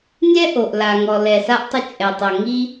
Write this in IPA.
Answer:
nʲ ɛ˥ ʔ o˩ ʔ l a˩ ŋ ɔ˩ l ɛ˩ s a˥ ʔ tˤ ʊ˥ t͡ʃʼ ɛ˩ tˤ o˩ ŋ i˥

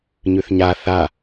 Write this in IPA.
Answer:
ɲ ʉ θ ɲ a θ a

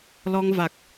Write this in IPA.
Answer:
l ɔ˧ ŋ v a˨˩ k̚

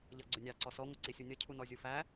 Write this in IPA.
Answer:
ʎ ʌ ɡ͡ǀ ʊ nʲ ɑ ǀ ɔ s ɔ ŋʷ ʌ ǀ i sʲ u nʲ ʌ cʰ u n ɔ zʲ u f æ

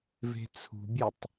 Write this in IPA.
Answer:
v e̤ t͡sʰ ṳ bʲ e tˤ

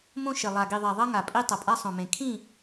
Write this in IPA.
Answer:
m õ˦ ʃ ɪ˨ lˠ a˨ ɡ i˨ ðˤ ɛ˨ ðˤ ʌ˦ ŋ a˨ pʼ i˦ tˤ ʌ˨ pʼ a˦ sˤ õ˨ m ẽ˨ kʰ ĩ˦˨

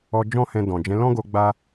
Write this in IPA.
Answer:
ɔ˧ d͡ʒ ɔ̃˦ h ɛ̃˧ d ɔ̃˨ d͡ʒ ɛ̃˨˦ l ɔ̃˦ ɡ o˧ ɡ͡b a˦

